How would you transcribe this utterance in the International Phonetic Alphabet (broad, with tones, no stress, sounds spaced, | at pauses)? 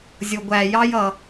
zʲ ʊ˩ ɡʷ æ˩ j ɑ˥ j ʌ˩